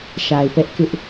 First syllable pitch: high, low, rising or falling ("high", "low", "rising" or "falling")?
low